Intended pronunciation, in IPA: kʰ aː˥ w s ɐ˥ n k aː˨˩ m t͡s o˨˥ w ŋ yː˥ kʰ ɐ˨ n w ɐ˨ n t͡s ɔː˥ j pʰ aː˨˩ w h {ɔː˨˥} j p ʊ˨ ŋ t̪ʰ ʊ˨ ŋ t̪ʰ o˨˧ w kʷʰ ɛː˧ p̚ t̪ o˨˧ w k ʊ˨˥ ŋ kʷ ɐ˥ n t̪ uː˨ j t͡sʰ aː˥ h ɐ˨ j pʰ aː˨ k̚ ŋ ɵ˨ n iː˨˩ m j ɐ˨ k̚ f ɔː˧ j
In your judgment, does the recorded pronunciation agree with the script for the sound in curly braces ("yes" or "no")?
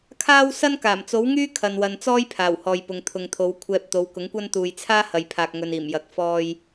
no